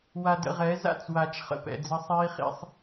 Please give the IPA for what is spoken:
wa˧də̰˧ʁɛ˨˦ za̰˦˨t͡swa˨t͡ʃ χə̰˨pɛ̰˨d͡zə˧ sˤiː˦χḭ˦sˤ

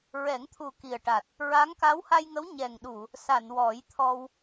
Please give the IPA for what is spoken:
ɹɛ˨˩˦ŋt̪ʰu˨˩ ki˨˩ə̯ʈa˨˩t̚ | ɹa˧˥ŋ ka˧˥wha˧jŋə˧˥w ɲɛ˨˩ŋɗu˨˩˨ | sa˨˩˨nwɔ˨˩˦jt̪ʰɔ˧w

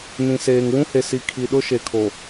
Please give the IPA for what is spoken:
nĩ˨seː˨ŋ wũ˦he˨si˨ kʰi˨ɗʊ˦ʃe˨kʰo˨

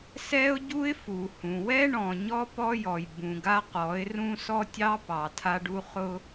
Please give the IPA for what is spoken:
sɛ˦ʊ̯ɟu˦ɪ̯ fu˨hũ˨ wɛ˦ɳɔ̃˨ ɲɔ˦ pɔ˦jɔ˨j bũ˨ɡa˦qɔ˨˦ɪ̯ rũ˦sɔ˦tʲɑ˦pɑ˨ tʰa˦ɖu˦ χʊ˦

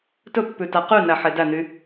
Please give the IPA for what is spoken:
tɵpːʉtæ qynæħe dæny

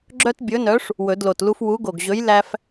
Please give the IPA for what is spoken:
ɡ͡ǁœ˦tbʲɵ˨˥nœ˨˥ʂ | wɵ˨˩˦dlo˨˩tlu˦f wu˨˥ɡo˨˩ɡʑɵ˨˥j læ˦f

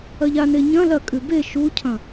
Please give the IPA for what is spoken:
ɐʎane ɲɐ̃ lɐkʼʉ be ʃucʰɐ̃

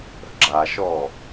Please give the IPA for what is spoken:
ə̤ɡ͡ǁaʃɔ

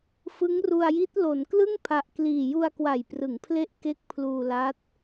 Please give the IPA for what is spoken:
fɯ˦˥ŋru˧a̯ji˦˥t̚ lo˩˦nklɯ˥˩ŋpʰa˨˩ʔkliː˨˩ ju˧a̯kwa˨˩jprɯ˩˦ŋpʰle˦˥ʔ ke˦˥k̚pʰluː˧la˦˥t̚

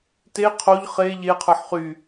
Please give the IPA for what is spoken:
te qʰoʎ χe ʎeqʰə˞ħ χy

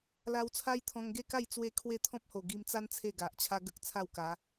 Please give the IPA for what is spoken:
la˧w t͡sʰa˦jt̪ʰɔ̃˧ŋ ɡe˥˧ka˥˧j t͡swe˥˧kʰwe˥˧ t̪ʰɔ̃˦p̚ho˨˩ɡi˧mt͡sa˦n t͡sʰe˥˧ɡa˨ʔt͡ɕʰa˦ɡə˦k̚ t͡sʰa˥˧wka˨˦

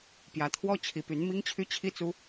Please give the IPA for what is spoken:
pjä˧˥t̪ʰwɔ˥ t͡ɕʰi˧˥py˧˥n mi˥ŋt͡ɕʰy˥ t͡ɕʰi˥t͡su˥

